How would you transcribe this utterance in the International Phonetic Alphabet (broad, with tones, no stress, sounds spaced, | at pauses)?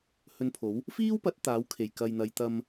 h ɵ˧ n pʰ o˨˥ w | f iː˥ w p ɐ˨˥ t̚ t̪ aː˨˥ w kʰ e˨˩ j k ɐ˨ j n̪ ɐ˨˧ j t̪ ɐ˧ m